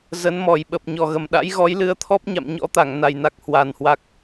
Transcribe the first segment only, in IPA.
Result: z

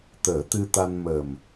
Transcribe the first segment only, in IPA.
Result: t̪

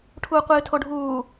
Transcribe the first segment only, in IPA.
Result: ʈʰ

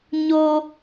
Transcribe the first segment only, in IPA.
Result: ɲ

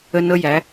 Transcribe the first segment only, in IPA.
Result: ə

